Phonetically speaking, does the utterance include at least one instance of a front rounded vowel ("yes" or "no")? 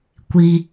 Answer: no